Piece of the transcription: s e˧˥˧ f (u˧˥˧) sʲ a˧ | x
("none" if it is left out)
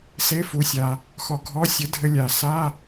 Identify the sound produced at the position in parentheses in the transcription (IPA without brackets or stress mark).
u˧